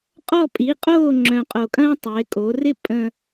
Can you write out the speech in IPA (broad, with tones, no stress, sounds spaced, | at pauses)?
qʼ ɔ˥˨ pʼ i˩˥ qʼ oː˥˨ ŋ͡ǁ œ̃˨˩ qʼ o˨˩ kʼ ɐ̃ː˦ tˤ ɪː˩˧ kʼ o˩˧ r ɪ˥˨ pʼ ə̃˨˩